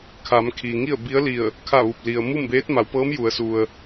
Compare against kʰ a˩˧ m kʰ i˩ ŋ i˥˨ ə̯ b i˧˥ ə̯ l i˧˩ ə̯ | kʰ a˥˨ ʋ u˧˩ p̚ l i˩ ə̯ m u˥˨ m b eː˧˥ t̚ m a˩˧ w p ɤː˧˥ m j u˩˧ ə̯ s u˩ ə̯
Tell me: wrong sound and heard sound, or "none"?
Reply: none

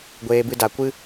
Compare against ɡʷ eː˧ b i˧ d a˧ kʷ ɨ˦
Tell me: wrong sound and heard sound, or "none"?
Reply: i˧ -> ɨ˧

